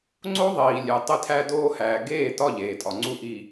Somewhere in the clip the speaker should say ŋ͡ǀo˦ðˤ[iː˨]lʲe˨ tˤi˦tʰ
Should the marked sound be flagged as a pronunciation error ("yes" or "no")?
no